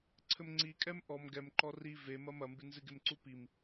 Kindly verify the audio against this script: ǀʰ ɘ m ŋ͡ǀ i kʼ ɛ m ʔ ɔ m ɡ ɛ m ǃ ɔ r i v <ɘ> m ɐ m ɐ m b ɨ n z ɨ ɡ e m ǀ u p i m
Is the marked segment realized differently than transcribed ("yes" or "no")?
yes